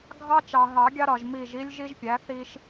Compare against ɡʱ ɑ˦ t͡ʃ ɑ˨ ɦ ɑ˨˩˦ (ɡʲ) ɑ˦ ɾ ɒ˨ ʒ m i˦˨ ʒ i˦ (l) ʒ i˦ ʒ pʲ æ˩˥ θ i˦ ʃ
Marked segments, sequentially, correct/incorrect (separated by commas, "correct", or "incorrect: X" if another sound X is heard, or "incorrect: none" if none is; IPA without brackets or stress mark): correct, incorrect: lʲ